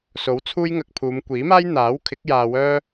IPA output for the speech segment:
so˨˥wt͡sʰuː˥jŋɐ˧k̚pʰuː˨˧m kʷiː˨˥maː˥j n̪aː˨˥wkʰɪ˨˥k̚ jaː˧wœː˥

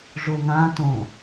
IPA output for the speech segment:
ʐoŋãtõ

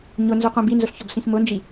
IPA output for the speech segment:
ɲʊnzʊqʷĩb inzʊɬçɔbsĩx mʊnd͡ʒi

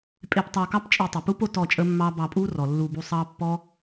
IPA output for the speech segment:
pʼe˧ptˤɑ˧kɑ˦p t͡ʃʼe˧tˤə˨pu˦p o˦tɔ˦˨t͡ʃʼə˦mːɑ˦ bɑ˧pʼu˦rɔ˨ lːu˧bu˧sˤɑ˦ pːɔ˦

